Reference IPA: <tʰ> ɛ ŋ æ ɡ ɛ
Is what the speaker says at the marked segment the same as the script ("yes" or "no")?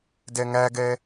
no